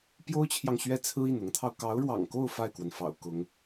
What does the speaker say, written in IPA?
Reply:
p j o˥ ʊ̯ t͡ɕʰ j ɑ˨ ŋ ɕ ɥ ɛ˥˩ t͡sʰ ɹ̩˥ i˥˩ n ʊ˧˥ ŋ t̪ʰ ɑ˧ ʊ̯ k ɑ˧˥ ʊ̯ ɻ w ɑ̰˨˩ ŋ k o˥˧ ʊ̯ f a˥˩ ɪ̯ k w ə˩ n f ɑ̰˨˩ ʊ̯ k ʊ˧˥ ŋ

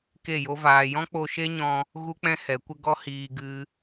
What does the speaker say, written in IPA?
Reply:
k e˦˨ j o˦ v aː˧ j ɔ̃˦ k͡p o˧ ʃ e˦ ɲ ɔ̃˧ | ɣ u˦ k͡p ɛ̃˦ h ɛ˨˦ kʷ ə˦ ɡ ɔ˦ h iː˧ ɡ ɨ˦

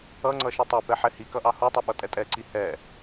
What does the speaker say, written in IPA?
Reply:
ʌ ŋ͡ǀ ʌ ʃ i tˤ ɛ p ɛ ħ ɛ h i k ʌ ʔ ɑ h u tˤ u ɓ ʌ tʼ ɛ tʼ ɛ ǀ i h ɛ

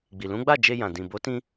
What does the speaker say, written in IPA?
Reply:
ɡ͡b i˨ l ũ˨˦ ɡ͡b a˦˨ d͡ʒ e˧ j ã˨ d ĩ˨ b o˨˦ t ĩ˧

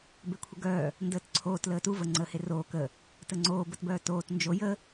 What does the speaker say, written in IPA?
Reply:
b e kʷʰ ə ɡ œː | n d əː t ǀʰ oː t l əː t u v ə ŋ͡ǀ əː h e r oː k ə | t ə ŋ͡ǀ oː b ə t b œː t oː t n d͡ʒ o j ə

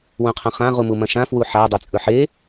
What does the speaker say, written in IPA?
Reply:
w ũ qʰ ɐ̃ χ ã ʁ u m u m ɐ̃ ʃ ã f w u ħ a dˤ e t͡sʼ ɵ ħ e

